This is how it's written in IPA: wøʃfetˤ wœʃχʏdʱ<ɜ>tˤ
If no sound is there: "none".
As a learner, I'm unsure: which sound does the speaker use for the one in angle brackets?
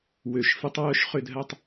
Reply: ɜ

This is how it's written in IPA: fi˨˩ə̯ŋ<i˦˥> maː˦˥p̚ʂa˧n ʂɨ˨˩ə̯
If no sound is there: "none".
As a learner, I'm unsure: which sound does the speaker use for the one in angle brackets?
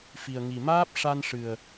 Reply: i˨˩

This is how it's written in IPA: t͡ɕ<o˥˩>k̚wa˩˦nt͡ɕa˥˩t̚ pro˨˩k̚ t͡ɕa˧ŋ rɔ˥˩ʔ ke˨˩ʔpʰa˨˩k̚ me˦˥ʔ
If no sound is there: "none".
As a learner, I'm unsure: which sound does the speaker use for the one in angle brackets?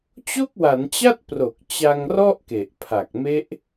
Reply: o˥˩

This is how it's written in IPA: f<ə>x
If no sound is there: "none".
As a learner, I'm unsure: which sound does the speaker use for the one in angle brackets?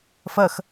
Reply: ə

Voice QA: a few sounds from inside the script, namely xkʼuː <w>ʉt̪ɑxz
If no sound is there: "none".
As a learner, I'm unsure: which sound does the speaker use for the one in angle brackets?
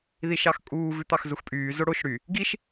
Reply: v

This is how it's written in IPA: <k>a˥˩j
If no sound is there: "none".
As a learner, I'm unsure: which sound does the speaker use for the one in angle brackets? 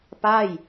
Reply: p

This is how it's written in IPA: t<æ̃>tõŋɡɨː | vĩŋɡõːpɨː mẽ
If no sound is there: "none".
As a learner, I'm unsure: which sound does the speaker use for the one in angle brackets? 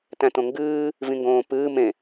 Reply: æ̃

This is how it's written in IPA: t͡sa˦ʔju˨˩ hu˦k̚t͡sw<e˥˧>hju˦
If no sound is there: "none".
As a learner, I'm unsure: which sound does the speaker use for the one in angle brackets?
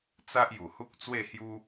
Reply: e˥˧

